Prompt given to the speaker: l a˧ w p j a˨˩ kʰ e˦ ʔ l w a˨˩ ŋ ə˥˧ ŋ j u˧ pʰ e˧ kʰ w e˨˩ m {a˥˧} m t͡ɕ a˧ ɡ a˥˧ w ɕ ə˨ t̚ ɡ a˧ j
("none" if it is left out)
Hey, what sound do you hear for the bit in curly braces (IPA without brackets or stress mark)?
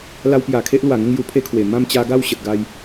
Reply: ã˥˧